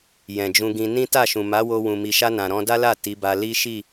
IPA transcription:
jɛ̃˨d͡ʒũ˧ɡĩ˧ nĩ˦ta˦˨ʃũ˨ ma˨˦wo˧ wũ˨mi˨ʃa˧ nã˨ɾɔ̃˧da˦la˦˨ ti˨˦ba˧ li˦ʃi˦˨

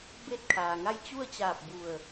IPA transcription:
be˥˨t̚kʰaː˩ŋa˥˨j t͡ɕu˥˨ə̯t͡ɕaː˧˩p̚ bu˧˩ə̯

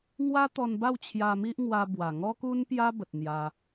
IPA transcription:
ŋwa˦t̪ɔ˧nba˥˧w t͡ɕʰja˧mi˦ʔŋwa˧bwa˨˩ ŋɔ˦ku˦npja˦bə˨t̚ n̪ja˧

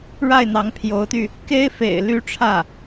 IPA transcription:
ɻa˥˩ɪ̯n̪ɑ˧˥ŋ pʰjo˧˥ʊ̯t̪y˧ | ke˥ɪ̯fḛ˨˩ɪ̯ ly˥ʈ͡ʂʰä˥˩

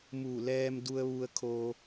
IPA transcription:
mu˧˩lɛː˧mdu˧ə̯ ʋu˧ə̯kʰo˧

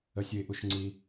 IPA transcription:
əsʲʊɪ̯ʔuʃŋ͡ǀi

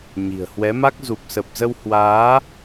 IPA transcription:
ɲi̤˨˩ə̯ hwɛ˨˦ma˦˥k̚ zu˨˩p̚sə˨˩p̚zə˧whwaː˨˦

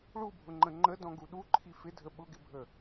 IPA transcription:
ɭubʱʊŋ͡ǃə̃ ŋ͡ǃədɔ̃ɡu ɗuǃʰi fɪdʱə ɓʊɡɪbʱə

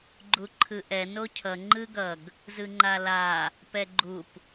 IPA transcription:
ɡ͡ǃuǃʰɯʔɛ nocʰʌ ŋ͡ǃɯɡʌɡ | zɯŋ͡ǃala | pɛɡ͡ǃup

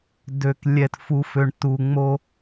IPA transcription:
dø˩k lʲɛ˩t fu˩fø˩ɳ tu˩ŋ͡mo˨

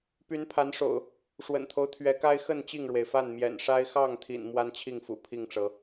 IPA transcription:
py˨˦npʰa˨˦nʂo̰˨˩ʊ̯ | ʂwə̰˨˩nt̪ʰo˦ʊ̯t̪ʰɥɛ˨˦ka˦ɪ̯ xə˥˨n t͡ɕi˥˨ŋɻwe˩ɪ̯fa˥˨n mjɛ̰˨˩nʂa˦ɪ̯ xɑ˥˨ŋt̪ʰḭ˨˩n mwa˦nt͡ɕʰi˥˨ŋfṵ˨˩ pʰi˥˨ŋʈ͡ʂɤ˨˦

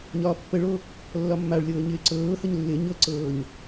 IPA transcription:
ɲɒːpːəɭo | lːɒmːaɭlʲɤː ɲɪːǀɤːhəɲ lːɪ ɲɤǀɤːɲ

